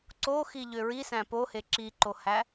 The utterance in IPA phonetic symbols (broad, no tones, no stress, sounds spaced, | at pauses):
ǀ o x i ʎ ø ɹ i s æ̃ p o h e ǁ i ǃ o h æ